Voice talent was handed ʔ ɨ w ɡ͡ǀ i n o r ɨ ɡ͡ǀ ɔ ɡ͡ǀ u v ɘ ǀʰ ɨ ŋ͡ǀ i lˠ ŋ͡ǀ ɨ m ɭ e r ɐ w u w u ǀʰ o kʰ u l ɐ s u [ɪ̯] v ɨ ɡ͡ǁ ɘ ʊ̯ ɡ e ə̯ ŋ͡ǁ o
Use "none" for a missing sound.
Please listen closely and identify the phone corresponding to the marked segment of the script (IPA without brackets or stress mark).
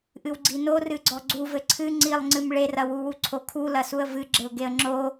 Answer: ə̯